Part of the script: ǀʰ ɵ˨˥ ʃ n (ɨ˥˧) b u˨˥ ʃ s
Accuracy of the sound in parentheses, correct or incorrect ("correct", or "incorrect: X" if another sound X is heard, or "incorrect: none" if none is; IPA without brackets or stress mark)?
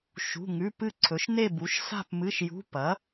incorrect: e˥˧